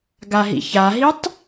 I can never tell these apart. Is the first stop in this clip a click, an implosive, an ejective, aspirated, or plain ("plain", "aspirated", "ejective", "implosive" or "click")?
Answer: plain